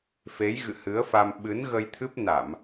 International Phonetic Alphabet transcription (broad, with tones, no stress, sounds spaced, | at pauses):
f e˨˦ j ɣ ɨ̰˧˨ h ɨ˨˦ ə̯ f a˧ m ɓ ɨ˨˦ n ɣ ə˧ j t̪ʰ ɨ˦˥ p̚ n a˧˩˨ m